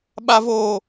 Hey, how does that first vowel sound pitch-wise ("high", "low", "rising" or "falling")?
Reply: high